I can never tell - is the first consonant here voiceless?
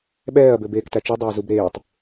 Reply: no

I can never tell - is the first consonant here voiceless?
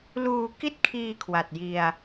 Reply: no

